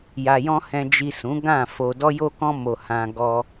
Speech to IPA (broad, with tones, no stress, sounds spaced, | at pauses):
j a˨ j ɔ̃˧ h ɛ̃˨ d͡ʒ i˨ s ũ˨˦ ɡ ã˦˨ f o˧ d ɔ˧ j o˧ k ɔ̃˧ m o˧ h ã˧ ɡ ɔ˧